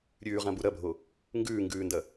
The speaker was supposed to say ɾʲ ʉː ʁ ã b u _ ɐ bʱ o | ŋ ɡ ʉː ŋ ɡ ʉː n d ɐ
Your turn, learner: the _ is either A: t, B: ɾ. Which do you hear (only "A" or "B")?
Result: B